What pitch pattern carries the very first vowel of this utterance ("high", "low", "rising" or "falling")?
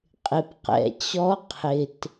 low